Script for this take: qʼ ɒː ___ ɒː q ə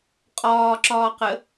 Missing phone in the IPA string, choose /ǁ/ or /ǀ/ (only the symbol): ǁ